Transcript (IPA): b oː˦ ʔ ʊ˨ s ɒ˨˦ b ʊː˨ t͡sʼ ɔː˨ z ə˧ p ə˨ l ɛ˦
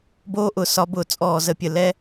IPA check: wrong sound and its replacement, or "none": p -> pʲ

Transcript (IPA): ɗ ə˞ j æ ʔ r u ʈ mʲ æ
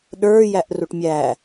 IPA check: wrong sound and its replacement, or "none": none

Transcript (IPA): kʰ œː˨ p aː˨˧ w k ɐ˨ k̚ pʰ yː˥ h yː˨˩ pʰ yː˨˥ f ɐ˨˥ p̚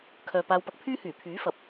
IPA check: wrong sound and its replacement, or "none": k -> p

